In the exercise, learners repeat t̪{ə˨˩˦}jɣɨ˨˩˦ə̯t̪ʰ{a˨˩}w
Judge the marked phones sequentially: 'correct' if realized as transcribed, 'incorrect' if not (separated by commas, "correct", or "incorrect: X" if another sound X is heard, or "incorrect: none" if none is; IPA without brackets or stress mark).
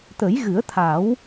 correct, incorrect: a˨˩˦